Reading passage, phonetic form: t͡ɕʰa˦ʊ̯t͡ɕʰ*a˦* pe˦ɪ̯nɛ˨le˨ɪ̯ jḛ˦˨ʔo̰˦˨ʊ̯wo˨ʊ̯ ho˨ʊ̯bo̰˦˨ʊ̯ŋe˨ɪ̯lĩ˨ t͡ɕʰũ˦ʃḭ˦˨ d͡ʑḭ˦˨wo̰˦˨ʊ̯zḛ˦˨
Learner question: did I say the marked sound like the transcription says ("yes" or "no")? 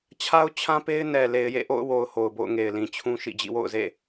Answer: no